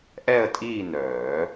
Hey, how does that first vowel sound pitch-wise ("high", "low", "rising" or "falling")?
falling